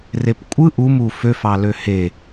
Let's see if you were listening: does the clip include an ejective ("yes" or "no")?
yes